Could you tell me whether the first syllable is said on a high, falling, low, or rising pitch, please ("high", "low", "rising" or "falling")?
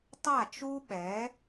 falling